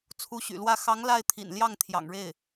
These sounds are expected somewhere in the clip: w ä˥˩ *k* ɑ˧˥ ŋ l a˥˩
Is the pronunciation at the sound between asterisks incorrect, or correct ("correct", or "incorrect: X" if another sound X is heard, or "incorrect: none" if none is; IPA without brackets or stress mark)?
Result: incorrect: x